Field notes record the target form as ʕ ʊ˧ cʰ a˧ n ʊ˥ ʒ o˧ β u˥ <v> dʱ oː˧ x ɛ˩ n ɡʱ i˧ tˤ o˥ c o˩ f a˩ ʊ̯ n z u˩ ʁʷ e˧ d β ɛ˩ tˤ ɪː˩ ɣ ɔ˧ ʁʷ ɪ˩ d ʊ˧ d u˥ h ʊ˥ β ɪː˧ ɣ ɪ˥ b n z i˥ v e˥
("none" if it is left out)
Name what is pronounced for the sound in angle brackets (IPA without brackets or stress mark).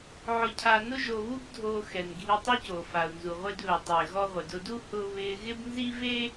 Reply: b